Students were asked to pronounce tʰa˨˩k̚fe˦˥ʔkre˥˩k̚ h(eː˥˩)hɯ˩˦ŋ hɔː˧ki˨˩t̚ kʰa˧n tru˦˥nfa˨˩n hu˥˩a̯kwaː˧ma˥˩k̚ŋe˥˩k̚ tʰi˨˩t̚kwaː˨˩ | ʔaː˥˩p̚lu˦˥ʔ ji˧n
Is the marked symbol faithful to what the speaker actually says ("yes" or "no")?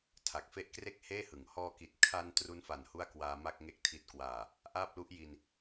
yes